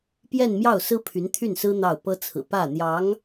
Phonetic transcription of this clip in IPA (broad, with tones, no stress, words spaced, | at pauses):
pjɛ˥˧nmjɑ˥˩ʊ̯sɹ̩˥ pʰy˧˥nt̪ʰy˥˩nsɹ̩˥ n̪ɑ˥˩ʊ̯ pɤ˥t͡sʰɹ̩˨˩ pä˥˩n̪jɑ˧˥ŋ